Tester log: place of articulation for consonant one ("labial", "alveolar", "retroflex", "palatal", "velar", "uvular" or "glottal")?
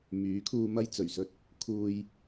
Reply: labial